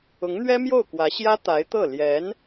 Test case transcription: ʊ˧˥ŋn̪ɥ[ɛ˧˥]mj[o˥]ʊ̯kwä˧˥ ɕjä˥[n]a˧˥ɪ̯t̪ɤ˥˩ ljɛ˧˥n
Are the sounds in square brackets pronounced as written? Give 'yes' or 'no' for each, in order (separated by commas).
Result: no, no, no